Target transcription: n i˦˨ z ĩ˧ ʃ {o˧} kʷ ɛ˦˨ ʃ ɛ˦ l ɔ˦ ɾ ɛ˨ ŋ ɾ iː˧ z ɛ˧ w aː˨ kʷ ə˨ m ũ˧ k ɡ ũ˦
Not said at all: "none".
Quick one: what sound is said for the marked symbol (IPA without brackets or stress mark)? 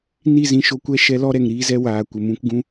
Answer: o˧